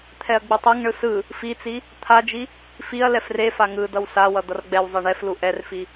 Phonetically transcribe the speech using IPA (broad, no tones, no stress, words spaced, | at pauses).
t̪ʰɛɐ̯ɡ͡bɯtˤɛŋɳɯ sɯ | fit͡si | t̪ʰad͡ʒi | fiɐ̯ lɛfrefa ŋɯdʌw sawʌ d̪ʌrɡ͡bɛwzˤe ɳɛflu ʔɛrfi